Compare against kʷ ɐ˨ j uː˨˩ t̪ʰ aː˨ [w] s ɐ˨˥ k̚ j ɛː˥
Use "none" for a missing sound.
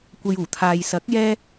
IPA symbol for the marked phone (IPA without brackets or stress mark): j